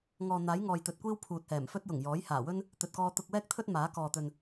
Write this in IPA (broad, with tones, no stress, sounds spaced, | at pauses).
ŋ ɔː˨ n̪ aː˨˥ j ŋ ɔː˨ j t̪ ɵ˨ t̚ kʷ iː˥ w pʰ uː˨ t̚ h ɛː˨˩ m f ɵ˥ t̚ j ʊ˨˩ ŋ j ɔː˨˥ j h aː˨˩ w ɵ˥ n | t̪ ɵ˨ t̚ k ɔː˧ t̪ ʊ˧ k̚ w ɛː˥ k̚ t̪ʰ ɵ˥ t̚ m aː˨˥ k ɔː˨ t̪ ɵ˨ n